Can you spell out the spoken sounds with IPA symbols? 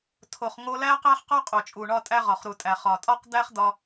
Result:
tʰo˩χŋo˧læ˥ qæ˥χqɒ˥ qʼo˩t͡ʃʼu˩ɳɒ˧tʼæ˧ ʁɒ˩χɾu˩tʼæ˩χɒ˩ tʼɒ˥qd̪æ˥χd̪ɒ˧

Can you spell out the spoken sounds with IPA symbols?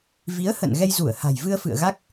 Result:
vi˨˦ə̯hə̰˧˨n ɣɛ˧jzu˧˩ə̯ha̤˨˩jvɨ˧ə̯ fɨ̰˧˨ə̯ɣa˦˥k̚

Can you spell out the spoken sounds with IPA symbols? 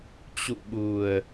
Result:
t͡ɕṵ˧˨ɓu˨˩ə̯

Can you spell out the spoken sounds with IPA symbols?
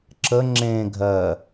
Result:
ǁə ŋ͡ǁẽ ɡʱɜ

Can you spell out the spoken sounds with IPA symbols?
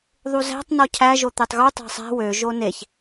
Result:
ðˤuzæ̤tˤ nɔcʰæ ʒot̪etˤɣu tˤæ̤sˤæ̤ wø ʒoneç

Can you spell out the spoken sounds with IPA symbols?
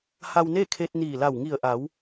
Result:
ha˧wneː˥˨kʰe˧t̚ niː˧˩la˧˩w ŋi˧˩ə̯ʔa˩˧w

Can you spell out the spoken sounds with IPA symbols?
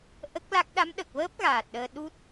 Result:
ʔə˦˥k̚la˦˥k̚ ɗa˧˥mɗə˨˩k̚vəː˦˥p̚ ɣaː˨˩t̚ɗəː˧ ɗu˦˥t̚

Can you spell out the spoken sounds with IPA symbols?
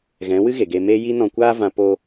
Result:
ɣɛ̃˨˦wɨ˦ ɣe˨ɡe˧ meː˦ji˦ nɔ̃˧kʷaː˦ vã˧ poː˧

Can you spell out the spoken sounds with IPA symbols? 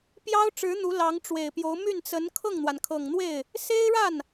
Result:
pjɑ˥ʊ̯ʈ͡ʂɻ̩˧˥ n̪u˧˥ lɑ˧˥ŋʈ͡ʂwe˨˩ɪ̯pjo˧˥ʊ̯ my˥˩nt͡sə˧˥n kʰɤ˥˩ŋn̪wa˩nkʰɤ˨˩ŋ n̪we˥˩ɪ̯ | se˥ɪ̯ɻa˥˩n

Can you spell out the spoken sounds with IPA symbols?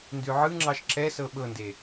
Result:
ndʉʕɯŋ͡ǁɑʃ ǁɛsɤ ɓɤnde

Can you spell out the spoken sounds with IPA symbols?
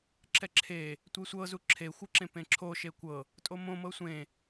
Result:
ǁɛǁʰe | tʷesʷɤ zuǁʰexʷɯǁẽ pẽǁʰo ʃekʷɤ | tʼomõ mɤsʷẽ

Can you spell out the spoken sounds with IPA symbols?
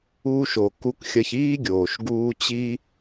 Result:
uː˦ʃ o˨ ku˦kxʲɐ˦ç iː˥ɡʲoː˨ʃɡuː˦ t͡ɕi˦

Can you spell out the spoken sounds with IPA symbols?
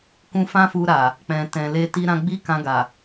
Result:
kũ˧fã˦fu˧ ɾa˨ | k͡pɛ̃˨tɛ̃˨le˧ ti˦ ɾã˧ɡ͡bi˦kã˧ɡa˨

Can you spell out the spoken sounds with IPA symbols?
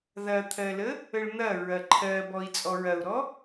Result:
ðɐt̪ʰɜlə | əɭn̪ɐ ɹɐǃʰɜbɔi̯ t͡sʼɔɹɐu̯ɾɔ

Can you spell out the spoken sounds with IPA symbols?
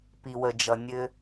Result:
pi˨wə˨d͡ʒʌ˨ nʲɘ˦

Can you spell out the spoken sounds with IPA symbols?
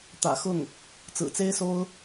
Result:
t̪ä̰˨˩xʊ˥˩ŋ | t͡sɹ̩˨˩t͡se˥ɪ̯so˥ʊ̯

